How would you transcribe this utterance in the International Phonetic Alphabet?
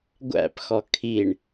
ɡʷæ̰pxɔ kʰiɳ

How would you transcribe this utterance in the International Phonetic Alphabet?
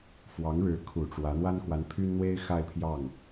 fwɑ˧˥ŋɻɻ̩˧˥kʰu˨˩ ʈ͡ʂwä˧˥ n̪wa˥nkwa˧˥npʰy˥nn̪we˥ɪ̯ xa˥˧ɪ̯pʰjɑ˥˩ŋ

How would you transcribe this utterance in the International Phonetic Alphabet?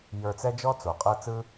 jə˞˧t͡sɛ˦d͡ʒɔ˦ t͡so˨qʼɤ˦ t͡sɯ˦

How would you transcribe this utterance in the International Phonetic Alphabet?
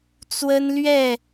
t͡swə˦nlɥɛ˥˨

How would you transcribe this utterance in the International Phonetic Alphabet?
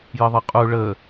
jəðˤʌqʼu ɭə

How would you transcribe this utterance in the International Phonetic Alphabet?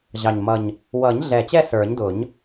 ʑɑ˨˩ɲmʌ˨˩ɲ | wʌ˨˩˦ɲɮɛ˨˩t͡ɕɛ˦˨ sə˞˨˩˦ɲdʊ˨˩˦ɲ

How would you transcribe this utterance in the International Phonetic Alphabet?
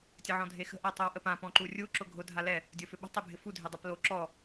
tʲəʕɔ̃dʱexə̤ ʔatˤowʔəpã pɔ̃ǃurʲu ǁʊɡʱʊ dʱalɛ | dʲofʏɓə̤ tˤebʱɪfu dʱedˤaplo ǁɔ

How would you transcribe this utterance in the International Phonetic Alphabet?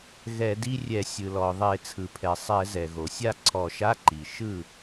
ɣɛ˧˩˧di˧˥˧rʲɛ˧˩˧ sʲɯ˩lɔ˩ðˤe˧˩˧ t͡sʰɯ˩pʰɛ˩ sˤɛ˧˩˧zɛ˩ ɣo˩sʲa˥˩ǀʰɔ˧˩˧ʃa˧˥˧ ǃi˩ ʃɯ˥˩

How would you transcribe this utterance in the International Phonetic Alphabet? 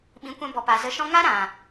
ɓĩ˨˦kʷɛ̃˧bɔ˨ pa˨zə˧ʃɔ̃˦ ŋa˦ɾã˨

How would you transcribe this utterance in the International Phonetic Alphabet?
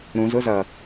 ɾũzʊzʌ

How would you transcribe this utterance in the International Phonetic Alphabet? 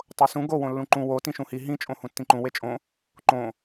tˤosũ ɡo wõlːũǃũ wo tĩʃũhi ɦĩ t͡ʃʼõhũtːĩǃũ wet͡ʃʼõ | ǃõ

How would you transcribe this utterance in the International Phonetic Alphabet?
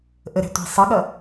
ʔəɾæ̤tʷi̤ sˤʌɠʌ

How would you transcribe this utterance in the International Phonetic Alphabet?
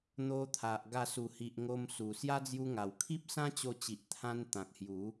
n̪o˧t̪ʰa˨ʔ ɡa˧su˨˩hi˨ʔ ŋo˧msu˨˩ sja˦d͡zju˧ŋa˨˩w kʰi˦p̚sã˦t͡ɕo˧t͡ɕi˨ʔ t̪ʰã˧n t̪ã˨k̚hju˨˦

